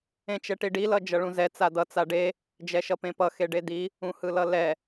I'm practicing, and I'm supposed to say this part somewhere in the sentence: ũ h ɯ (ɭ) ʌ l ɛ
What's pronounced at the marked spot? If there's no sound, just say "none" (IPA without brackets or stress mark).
l